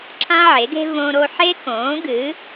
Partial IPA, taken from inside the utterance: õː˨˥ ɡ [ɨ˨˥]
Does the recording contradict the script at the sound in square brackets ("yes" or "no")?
no